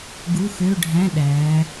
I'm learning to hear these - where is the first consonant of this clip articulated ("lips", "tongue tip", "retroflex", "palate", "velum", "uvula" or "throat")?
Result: velum